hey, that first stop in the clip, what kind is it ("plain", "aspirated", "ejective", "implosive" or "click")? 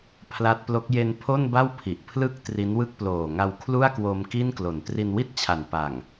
aspirated